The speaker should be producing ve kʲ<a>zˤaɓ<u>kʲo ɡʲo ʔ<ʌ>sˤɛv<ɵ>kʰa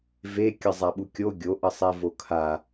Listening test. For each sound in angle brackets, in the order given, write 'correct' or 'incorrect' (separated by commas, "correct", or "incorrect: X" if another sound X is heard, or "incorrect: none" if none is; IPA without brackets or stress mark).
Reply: incorrect: ʌ, correct, correct, incorrect: o